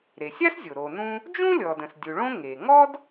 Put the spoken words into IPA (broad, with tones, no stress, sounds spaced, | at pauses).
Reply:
ɾ e˩ sʲ a˥ s zʲ o˩ ɾ o˩ n ũ˥ | d͡ʒ ũ˥ lʲ ɔ˩ d ə̃˩ s dʲ u˩ ɭ õ˥ ŋ e˩ ŋ ɔ˥ d